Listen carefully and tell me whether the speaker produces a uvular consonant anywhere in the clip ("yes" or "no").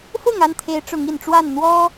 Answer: no